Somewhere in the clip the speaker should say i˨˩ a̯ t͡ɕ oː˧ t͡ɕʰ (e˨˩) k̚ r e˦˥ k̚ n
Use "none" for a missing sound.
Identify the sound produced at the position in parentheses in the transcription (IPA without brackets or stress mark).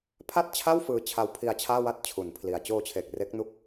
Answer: e˨˩